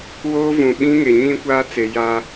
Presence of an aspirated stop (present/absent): absent